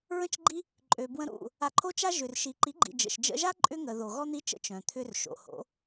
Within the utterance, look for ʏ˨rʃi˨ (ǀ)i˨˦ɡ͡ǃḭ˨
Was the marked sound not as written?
yes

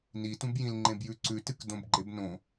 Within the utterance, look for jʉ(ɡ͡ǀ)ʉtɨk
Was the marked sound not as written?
yes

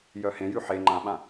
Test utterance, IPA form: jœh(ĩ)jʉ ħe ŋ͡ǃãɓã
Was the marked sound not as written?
yes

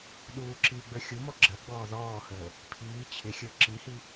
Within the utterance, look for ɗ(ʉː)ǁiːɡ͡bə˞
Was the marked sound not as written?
yes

